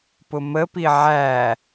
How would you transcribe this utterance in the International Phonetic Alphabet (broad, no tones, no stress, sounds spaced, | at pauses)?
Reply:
p ʊ m ə p i ʕ æ